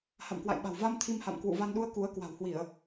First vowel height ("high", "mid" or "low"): low